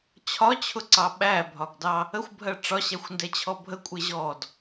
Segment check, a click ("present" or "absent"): present